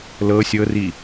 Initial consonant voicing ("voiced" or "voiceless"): voiced